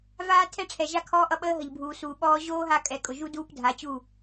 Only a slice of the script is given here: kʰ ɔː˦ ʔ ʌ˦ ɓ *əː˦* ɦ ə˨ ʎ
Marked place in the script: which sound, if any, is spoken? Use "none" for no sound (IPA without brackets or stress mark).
əː˦